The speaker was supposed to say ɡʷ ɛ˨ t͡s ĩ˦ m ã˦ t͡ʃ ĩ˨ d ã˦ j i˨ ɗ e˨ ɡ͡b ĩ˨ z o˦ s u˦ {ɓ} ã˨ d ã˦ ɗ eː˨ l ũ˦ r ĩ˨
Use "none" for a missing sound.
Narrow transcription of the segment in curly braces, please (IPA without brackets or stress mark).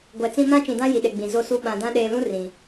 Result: ɓ